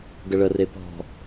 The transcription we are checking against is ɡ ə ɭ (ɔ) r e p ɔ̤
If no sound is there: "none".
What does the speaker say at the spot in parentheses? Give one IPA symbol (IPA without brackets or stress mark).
ə